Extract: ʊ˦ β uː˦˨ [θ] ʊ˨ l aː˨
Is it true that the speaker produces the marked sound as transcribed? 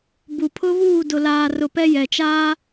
no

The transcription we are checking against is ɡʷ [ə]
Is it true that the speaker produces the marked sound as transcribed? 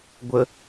yes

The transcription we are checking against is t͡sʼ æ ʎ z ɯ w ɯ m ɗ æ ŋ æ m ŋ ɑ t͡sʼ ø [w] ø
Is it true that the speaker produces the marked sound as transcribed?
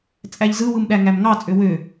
yes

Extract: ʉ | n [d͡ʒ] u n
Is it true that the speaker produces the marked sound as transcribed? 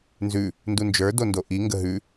no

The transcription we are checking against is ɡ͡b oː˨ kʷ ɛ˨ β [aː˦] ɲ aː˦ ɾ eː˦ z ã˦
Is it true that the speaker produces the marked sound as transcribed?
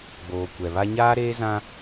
no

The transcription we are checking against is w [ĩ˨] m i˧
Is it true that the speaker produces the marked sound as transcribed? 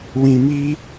yes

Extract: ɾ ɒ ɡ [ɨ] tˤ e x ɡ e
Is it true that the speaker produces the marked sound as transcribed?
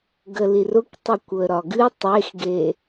yes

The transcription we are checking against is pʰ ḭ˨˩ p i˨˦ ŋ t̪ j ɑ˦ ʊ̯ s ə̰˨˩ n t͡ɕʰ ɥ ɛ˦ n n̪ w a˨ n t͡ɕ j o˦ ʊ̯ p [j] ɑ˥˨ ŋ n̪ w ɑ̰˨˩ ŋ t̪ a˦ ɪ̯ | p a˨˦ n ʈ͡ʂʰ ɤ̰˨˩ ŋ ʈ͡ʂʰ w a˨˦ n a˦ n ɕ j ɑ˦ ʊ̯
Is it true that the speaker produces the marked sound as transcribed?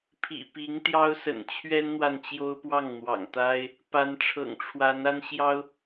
no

